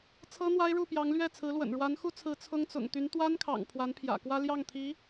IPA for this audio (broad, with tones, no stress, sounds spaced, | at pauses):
t͡sʰ ɤ˥ n̪ w a˥ ɪ̯ ɻ u˥˩ p j ɑ˧˥ ŋ l ɥ ɛ˥˩ t͡sʰ ɹ̩˧˥ l w ə̰˨˩ n ɻ w a˧˥ n x u˥ t͡sʰ ɹ̩˧˥ t͡sʰ ʊ˥ ŋ t͡s ʊ̰˨˩ ŋ t̪ y˧˥ n t̪ w a˥ n kʰ ɑ̰˨˩ ŋ pʰ w a˧˥ n pʰ j ä̰˨˩ k w ä˥ l j ɑ˥˩ ŋ t̪ʰ i˧˥